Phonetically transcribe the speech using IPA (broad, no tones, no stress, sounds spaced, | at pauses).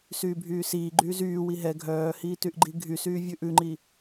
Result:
s yː bʱ yː s iː ɡ͡ǃ yː z yː w i ɦ ɛ ɡʱ œː h iː t y ʔ ɡ͡ǃ i ɡʱ y s yː vʲ ʉ ʔ ʉ ŋ͡ǃ i